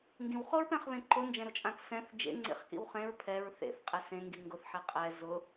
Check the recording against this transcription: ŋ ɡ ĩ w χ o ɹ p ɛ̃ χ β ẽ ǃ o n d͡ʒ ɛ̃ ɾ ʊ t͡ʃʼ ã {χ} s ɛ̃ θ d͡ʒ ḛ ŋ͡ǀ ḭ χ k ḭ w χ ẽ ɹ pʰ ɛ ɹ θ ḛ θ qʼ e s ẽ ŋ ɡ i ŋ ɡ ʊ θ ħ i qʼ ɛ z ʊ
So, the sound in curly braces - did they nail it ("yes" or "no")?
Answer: no